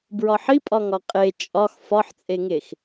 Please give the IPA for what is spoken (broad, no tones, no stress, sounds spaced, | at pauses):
b ɹ ɒ ħ i pʼ ɒ ŋ ɒ qʼ e t͡ʃʼ ɒ x f ɒ ħ t͡sʼ e ŋ e x